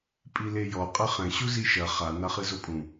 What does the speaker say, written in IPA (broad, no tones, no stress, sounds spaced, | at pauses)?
pʼ i l e j ɔ qʼ ɘ χ ɛ̃ ɕ u z i ʃ ɐ χ a n a χ ɨ z o pʼ ũ